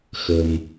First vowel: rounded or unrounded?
unrounded